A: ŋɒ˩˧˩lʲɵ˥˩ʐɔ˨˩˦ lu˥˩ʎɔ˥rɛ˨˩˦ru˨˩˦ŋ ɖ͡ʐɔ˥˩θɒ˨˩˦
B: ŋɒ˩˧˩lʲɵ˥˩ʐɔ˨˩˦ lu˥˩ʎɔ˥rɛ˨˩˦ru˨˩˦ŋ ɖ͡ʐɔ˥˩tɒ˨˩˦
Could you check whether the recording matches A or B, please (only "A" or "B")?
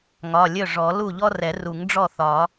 A